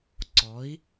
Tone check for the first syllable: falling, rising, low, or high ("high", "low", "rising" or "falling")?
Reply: rising